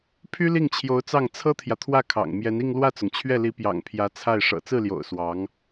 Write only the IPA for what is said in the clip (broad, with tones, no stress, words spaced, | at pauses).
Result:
pʰy˥li˥˩ŋt͡ɕʰjo˧˥ʊ̯t͡sɑ˥˩ŋ t͡sʰɤ˥t̪ʰjä˨t̪ʰwä˥˩kʰɑ̰˨˩ŋ mjɛ˧˥ni˥˧ŋ lwä˥˩t͡sʊ˩ŋt͡ɕʰɥɛ˥˩li˧˥ pjɑ̰˨˩ŋ pʰjä˧˥t͡sʰa˥˩ɪ̯ ʂɤ̰˨˩t͡sɹ̩˥˩ljo̰˨˩ʊ̯ swɑ˧˥ŋ